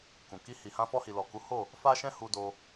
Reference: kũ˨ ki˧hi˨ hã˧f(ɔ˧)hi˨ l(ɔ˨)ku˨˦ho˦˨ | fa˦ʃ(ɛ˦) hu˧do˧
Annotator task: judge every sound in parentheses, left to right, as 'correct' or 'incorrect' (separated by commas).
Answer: correct, correct, incorrect